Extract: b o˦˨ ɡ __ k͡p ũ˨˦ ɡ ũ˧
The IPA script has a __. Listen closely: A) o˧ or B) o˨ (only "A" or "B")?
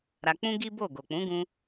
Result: B